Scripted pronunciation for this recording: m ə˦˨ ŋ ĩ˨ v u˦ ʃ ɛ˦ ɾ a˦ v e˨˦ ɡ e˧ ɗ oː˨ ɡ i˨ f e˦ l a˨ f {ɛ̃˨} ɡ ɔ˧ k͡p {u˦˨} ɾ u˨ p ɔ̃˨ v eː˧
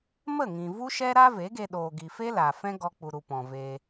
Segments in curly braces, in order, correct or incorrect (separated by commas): incorrect, incorrect